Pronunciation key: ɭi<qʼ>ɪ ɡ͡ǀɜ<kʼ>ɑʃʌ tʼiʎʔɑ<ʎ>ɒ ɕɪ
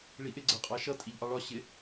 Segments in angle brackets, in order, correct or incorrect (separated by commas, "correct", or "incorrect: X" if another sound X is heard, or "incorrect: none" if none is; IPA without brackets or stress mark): incorrect: ʔ, incorrect: qʼ, incorrect: ɭ